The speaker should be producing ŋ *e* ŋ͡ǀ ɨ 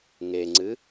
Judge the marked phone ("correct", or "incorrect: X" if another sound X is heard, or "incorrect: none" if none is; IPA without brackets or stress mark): correct